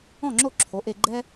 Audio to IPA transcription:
ɔ̃˥˩ŋ͡ǁo˥˩ǁʰo˩˥ ʔe˧ɡ͡ǃɛ˥

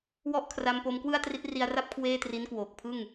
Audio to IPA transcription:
wɔ˥˩ʔkʰra˧mpo˧m kwɯ˥˩a̯tri˦˥t̚ri˧a̯ra˥˩p̚ kʰweː˥˩tri˦˥nkwoː˨˩k̚ pʰɯ˥˩ŋ

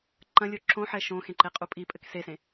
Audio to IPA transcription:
ǃɐ̃lʲo ǁõħɛ ʃõxẽǃeqʼu pʼipʼɘk sesẽ

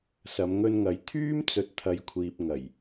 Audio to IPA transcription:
sɐ˨˧mŋɵ˧nŋɐ˨˧j t̪ʰyː˥mt͡sɵ˨˥t̚t̪ʰɐ˨jkʷʰiː˨p̚ ŋɐ˨˩j

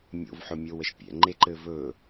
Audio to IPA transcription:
mʲo̰vħɵmʲowəʃ pʲɛ̰ŋ͡ǃeǃɘː vɵ

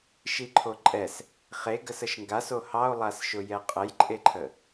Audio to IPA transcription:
ʃiǃʰoǃʼɛs | χeɡəs əʃŋɡaso hɑo̯lˠasʃʊ jɛqʼəjǃʼeǃʰə

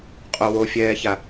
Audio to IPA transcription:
qʼowofʲɛːça

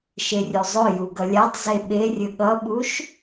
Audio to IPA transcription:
ʃerʲuzˤɵju ɡʌlʲatˤze ɓerʲɵ ɠʌɓuʃ

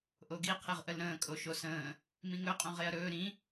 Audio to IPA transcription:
ʔoɡi qʰeʁʔəlɾə̃ː kʼoʃosə̃ː | mĩŋɵ qʼõʁeɐ̯ɾɵː ɾĩ

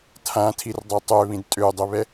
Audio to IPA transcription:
tʰãtʰirdˤɐ tˤøβĩd tʼødˤʏβɛ

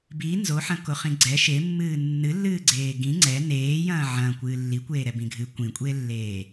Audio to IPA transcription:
bi nzoħɐ̃koχĩ ɡ͡ǀɛ ʃemːɨː nːɨlːɨːɡ͡ǀeː ɡĩ ŋ͡ǀɛ neːjɐ̃ː ʕɐ̃kʷɨː lːikʷeːɾɛbĩ ɡʱɨ kʷĩkʷʼeːlːeː

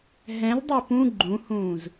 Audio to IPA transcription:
ɦɛ̃ldˤø pũ ɡ͡ǃũhũːz

